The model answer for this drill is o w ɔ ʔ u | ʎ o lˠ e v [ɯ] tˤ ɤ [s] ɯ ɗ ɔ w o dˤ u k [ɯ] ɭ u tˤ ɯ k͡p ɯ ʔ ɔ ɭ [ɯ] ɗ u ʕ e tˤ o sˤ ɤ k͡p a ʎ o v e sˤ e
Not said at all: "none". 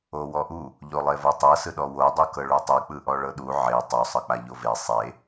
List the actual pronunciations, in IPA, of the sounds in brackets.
ɤ, s, ɤ, ɤ

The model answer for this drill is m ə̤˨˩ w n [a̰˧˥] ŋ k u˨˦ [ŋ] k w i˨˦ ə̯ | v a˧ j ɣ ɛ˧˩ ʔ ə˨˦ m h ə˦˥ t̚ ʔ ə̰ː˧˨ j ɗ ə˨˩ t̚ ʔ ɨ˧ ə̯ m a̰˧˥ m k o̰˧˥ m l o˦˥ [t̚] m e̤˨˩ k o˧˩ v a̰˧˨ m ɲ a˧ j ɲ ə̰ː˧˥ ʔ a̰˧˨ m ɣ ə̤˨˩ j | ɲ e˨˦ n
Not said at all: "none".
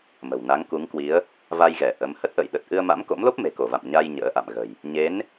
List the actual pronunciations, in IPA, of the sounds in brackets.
a˨˦, ŋ, p̚

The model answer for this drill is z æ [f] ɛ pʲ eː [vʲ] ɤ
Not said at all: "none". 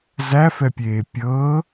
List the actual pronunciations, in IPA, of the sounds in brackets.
f, pʲ

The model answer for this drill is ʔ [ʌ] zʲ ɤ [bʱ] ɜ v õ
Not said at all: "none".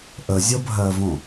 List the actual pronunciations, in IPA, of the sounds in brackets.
ə, bʱ

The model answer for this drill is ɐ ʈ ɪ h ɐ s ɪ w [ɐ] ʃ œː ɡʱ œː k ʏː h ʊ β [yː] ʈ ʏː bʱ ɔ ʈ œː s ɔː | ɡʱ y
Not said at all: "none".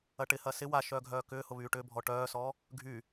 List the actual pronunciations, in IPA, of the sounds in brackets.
a, yː

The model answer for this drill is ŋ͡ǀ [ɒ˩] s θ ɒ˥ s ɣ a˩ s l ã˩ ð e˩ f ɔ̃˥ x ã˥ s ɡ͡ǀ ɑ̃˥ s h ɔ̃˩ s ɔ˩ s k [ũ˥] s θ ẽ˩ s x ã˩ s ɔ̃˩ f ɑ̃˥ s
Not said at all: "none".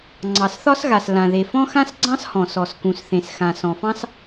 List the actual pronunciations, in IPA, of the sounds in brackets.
ɑ˩, ũ˩

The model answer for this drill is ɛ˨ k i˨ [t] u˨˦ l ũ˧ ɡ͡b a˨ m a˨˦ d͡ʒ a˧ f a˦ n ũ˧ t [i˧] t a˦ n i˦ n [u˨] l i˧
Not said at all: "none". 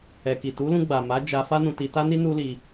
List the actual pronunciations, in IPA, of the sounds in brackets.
t, i˧, u˦

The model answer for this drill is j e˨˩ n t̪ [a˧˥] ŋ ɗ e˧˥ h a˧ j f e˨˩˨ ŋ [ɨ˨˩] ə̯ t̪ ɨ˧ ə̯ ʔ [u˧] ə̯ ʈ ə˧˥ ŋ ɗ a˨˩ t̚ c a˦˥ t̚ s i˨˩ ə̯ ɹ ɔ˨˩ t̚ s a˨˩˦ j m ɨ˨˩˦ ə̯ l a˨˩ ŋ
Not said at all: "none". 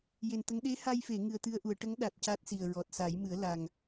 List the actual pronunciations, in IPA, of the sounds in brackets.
ə˧˥, ɨ˨˩, u˨˩˨

